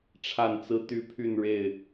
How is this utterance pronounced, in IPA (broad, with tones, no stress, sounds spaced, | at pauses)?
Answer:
ʈ͡ʂʰ a˥˨ n t͡s ɹ̩˦ t̪ y˦ pʰ y˥˨ n ɻ e˥˨ ɪ̯